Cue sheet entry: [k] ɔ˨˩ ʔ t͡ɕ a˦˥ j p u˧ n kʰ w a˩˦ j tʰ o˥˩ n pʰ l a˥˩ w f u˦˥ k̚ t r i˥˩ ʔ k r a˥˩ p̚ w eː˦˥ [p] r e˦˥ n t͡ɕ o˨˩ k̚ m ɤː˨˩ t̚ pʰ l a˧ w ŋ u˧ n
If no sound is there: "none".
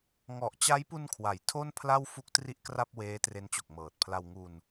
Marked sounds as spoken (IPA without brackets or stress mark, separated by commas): ŋ, t